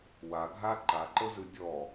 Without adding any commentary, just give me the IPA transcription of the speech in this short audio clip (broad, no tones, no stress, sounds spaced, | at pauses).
w a ɡʱ a ǃ a ǃ ɤ z ɯ dʲ ɔ